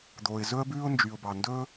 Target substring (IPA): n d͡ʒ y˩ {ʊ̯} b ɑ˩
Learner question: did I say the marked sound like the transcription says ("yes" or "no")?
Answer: yes